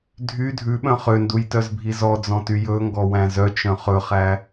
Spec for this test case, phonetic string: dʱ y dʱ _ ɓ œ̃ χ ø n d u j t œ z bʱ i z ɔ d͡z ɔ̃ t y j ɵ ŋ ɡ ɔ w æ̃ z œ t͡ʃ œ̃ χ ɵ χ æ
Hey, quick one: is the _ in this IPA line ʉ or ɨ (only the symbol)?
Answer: ʉ